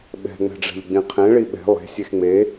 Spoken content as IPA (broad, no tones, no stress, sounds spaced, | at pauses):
ɓ ɛ̤ ŋ͡m ɛ̤ ɖ͡ʐ ɛ̤ ʎ ɡ͡b ĩ qʰ ẽ ɭ i ɓ ɛ̤ lˠ e̤ sʲ e x ŋ͡m e